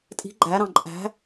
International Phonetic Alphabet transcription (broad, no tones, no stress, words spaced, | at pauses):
tʼi̤ ɡ͡ǃæɾɑ̃ ǃʼæ̤